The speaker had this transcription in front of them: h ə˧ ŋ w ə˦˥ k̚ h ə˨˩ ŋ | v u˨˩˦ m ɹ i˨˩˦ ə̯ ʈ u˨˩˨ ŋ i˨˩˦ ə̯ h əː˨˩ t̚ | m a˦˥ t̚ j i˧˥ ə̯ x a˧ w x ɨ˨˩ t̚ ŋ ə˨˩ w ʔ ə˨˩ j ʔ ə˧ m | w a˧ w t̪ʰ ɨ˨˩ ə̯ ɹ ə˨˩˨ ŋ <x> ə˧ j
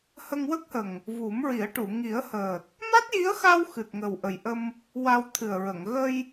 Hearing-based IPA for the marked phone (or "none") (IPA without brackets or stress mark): ɣ